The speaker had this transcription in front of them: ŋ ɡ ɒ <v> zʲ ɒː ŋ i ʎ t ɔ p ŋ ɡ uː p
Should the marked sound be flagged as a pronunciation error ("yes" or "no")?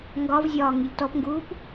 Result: no